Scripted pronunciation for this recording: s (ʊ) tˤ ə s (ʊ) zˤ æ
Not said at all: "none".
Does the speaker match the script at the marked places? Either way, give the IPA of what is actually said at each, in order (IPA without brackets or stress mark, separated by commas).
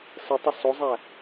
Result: ə, ʊ